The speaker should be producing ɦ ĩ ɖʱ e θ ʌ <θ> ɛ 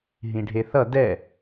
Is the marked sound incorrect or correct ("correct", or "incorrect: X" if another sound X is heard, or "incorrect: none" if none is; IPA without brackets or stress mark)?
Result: incorrect: d